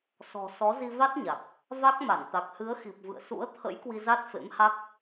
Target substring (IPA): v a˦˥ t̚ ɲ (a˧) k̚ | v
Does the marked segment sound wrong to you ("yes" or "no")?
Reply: yes